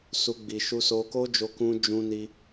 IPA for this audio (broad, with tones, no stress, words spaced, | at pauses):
su˧ɡ͡bi˨ ʃu˧so˧ko˦d͡ʒo˧ kũ˧ d͡ʒũ˧ni˧